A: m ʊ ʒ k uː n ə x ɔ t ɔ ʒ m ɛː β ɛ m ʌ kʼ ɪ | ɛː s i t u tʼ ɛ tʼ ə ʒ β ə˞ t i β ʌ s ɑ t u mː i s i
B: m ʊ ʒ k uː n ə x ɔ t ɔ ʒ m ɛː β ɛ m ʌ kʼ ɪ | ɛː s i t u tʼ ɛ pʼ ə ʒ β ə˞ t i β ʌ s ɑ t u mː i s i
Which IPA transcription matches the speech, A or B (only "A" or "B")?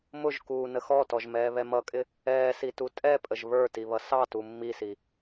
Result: B